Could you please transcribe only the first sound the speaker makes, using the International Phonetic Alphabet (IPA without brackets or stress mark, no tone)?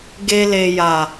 ɡ